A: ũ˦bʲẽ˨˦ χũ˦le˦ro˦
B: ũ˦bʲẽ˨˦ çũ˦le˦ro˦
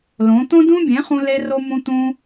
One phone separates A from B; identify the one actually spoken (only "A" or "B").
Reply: A